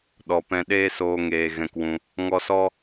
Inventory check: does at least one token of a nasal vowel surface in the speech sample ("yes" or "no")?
yes